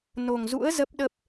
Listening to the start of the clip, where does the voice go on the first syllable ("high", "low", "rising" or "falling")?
low